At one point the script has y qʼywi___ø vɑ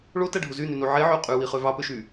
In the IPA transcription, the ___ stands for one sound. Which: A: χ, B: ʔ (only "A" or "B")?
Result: A